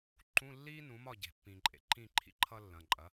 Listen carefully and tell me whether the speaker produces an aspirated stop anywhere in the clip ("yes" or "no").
yes